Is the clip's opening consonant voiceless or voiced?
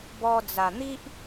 voiced